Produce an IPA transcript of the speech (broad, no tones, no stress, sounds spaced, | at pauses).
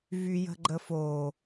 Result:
v y j ə̤ ɡ͡ǃ ə f o